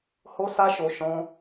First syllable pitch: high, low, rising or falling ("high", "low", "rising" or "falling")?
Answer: high